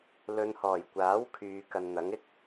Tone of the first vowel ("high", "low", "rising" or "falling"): low